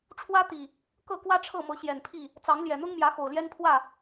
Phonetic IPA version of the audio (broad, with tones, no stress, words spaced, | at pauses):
ʈ͡ʂʰwä˦t̪i˨˩ | kɤ˥˨kwä˦ʈ͡ʂʰɤ˥˨ mɤ˨˦ɕjɛ˨˩npʰi˥˨ | t͡sɑ˨˦ŋljɛ˨˩n̪ʊ˦ŋmjä˨˦ xo˨˩ʊ̯ljɛ˦npʰwä˥˨